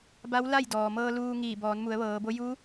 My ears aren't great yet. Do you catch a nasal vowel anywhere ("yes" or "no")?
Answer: no